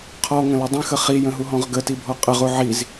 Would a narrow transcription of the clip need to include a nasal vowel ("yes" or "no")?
yes